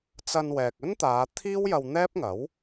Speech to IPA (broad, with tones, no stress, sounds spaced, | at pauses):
t͡s ɐ˧ n w ɛː˨ k̚ ɵ˥ n t̪ aː˨˧ t̪ʰ iː˥ w j ɐ˧ w n̪ ɛː˥ p̚ ŋ ɐ˨˥ w